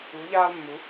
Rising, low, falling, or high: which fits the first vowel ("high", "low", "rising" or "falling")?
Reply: rising